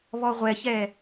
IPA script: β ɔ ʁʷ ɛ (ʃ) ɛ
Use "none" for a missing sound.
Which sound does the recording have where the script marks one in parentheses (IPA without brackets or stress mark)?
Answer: ç